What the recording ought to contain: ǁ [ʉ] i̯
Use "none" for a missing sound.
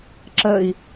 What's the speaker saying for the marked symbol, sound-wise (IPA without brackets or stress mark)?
ə